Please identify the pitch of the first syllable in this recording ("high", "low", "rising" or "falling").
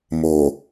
low